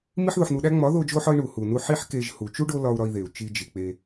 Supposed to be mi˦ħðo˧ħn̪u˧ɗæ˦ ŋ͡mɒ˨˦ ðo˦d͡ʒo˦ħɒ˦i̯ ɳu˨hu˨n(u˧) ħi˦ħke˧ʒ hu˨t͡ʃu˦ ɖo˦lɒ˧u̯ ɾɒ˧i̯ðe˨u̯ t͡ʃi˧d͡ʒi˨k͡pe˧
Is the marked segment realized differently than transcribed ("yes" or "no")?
no